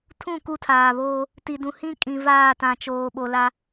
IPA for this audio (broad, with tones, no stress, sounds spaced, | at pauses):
tʰ ũ˦˨ k u˦ tʰ aː˨ β oː˦ | t i˨ d ũ˨ h ĩ˦ kʼ ĩ˨ v aː˦˨ t ã˨ t͡ʃ oː˨ ɓ o˨ l a˦